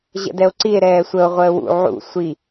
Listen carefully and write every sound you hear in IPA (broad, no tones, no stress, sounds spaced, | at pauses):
ʑ ə̰ d ɛ o̯ ǀ i e̯ ɾ ɛː sʷ ə o̯ ʁʷ əː w ṵ ʕ ṵ sʷ i